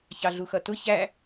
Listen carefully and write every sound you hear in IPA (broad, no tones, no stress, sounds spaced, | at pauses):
ç ɑ ɮ u x ʌ t ʊ ç æ